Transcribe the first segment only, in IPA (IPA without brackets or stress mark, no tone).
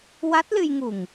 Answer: w